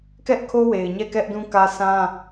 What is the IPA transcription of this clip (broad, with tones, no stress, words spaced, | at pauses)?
kɛ˦ʔkʰo˦we˨ɪ̯ ɲɛ˦˨kɛ˦ʔdũ˦kä˦ sʰã˦